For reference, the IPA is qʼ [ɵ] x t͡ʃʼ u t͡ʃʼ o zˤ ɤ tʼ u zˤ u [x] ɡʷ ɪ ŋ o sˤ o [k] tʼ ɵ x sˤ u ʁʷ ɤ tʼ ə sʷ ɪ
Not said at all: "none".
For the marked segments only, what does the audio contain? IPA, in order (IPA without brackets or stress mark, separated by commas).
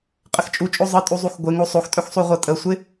ə, x, x